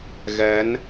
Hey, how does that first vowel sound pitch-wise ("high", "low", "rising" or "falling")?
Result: rising